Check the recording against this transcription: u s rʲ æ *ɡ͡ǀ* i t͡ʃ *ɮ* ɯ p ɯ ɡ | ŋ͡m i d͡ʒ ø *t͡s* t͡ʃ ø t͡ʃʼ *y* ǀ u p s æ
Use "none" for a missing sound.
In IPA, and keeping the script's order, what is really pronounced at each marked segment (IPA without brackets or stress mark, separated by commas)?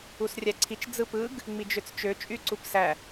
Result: ǀʰ, d͡z, t͡s, y